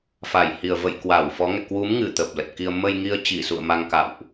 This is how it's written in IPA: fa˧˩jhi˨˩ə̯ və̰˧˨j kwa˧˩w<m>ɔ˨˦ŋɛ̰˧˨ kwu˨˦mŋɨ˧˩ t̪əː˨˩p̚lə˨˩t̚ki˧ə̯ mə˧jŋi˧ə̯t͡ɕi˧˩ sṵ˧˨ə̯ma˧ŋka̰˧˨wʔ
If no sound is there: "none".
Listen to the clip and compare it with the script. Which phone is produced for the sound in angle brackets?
f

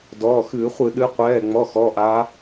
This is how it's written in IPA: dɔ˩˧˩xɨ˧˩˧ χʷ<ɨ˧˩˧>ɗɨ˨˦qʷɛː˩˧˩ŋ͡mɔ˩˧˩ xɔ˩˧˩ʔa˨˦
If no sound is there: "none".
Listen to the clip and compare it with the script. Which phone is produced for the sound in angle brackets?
ɨ˧˩˧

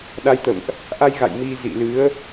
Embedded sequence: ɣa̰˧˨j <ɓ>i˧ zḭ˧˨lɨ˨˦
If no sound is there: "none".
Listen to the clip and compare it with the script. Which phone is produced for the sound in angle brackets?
m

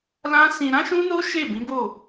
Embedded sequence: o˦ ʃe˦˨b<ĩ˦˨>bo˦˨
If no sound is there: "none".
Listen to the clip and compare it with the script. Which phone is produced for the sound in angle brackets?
ĩ˨˦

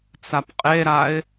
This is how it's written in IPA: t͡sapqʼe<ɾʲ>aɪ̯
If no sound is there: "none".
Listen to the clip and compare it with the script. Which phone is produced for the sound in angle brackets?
ɾ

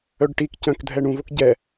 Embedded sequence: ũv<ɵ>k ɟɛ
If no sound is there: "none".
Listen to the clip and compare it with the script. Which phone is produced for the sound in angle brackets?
o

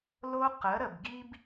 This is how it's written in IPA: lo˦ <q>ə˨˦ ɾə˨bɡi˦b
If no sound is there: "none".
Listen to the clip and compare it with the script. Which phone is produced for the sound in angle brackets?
q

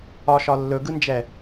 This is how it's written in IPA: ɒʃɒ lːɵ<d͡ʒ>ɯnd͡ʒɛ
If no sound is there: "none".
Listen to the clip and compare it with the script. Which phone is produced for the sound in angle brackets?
ɡ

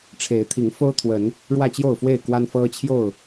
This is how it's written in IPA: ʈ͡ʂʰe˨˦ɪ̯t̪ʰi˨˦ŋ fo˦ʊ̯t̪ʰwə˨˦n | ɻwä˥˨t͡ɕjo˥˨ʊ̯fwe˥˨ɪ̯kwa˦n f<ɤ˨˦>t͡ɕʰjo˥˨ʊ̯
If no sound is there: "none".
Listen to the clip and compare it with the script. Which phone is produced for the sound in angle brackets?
ɤ˦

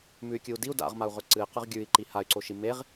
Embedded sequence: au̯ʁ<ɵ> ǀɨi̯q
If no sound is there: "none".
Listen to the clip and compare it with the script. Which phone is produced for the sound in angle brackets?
ɵ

